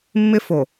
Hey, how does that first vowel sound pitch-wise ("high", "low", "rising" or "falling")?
high